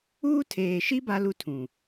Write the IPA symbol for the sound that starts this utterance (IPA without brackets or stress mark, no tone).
uː